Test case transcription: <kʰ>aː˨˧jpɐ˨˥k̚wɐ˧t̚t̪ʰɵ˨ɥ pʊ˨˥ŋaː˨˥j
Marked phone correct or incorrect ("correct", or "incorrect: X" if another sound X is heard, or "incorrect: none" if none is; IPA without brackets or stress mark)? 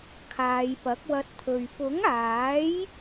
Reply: correct